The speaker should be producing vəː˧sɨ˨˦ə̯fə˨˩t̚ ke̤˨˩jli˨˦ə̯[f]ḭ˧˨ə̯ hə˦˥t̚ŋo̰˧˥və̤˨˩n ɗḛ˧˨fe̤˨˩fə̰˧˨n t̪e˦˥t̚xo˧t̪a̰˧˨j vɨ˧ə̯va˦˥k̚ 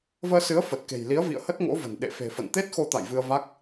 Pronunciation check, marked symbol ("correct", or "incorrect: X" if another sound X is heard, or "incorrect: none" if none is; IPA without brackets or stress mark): incorrect: v